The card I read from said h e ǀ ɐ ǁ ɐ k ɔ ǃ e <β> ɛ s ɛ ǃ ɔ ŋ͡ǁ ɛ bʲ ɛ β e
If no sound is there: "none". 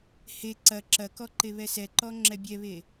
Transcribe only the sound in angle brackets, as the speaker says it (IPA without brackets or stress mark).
β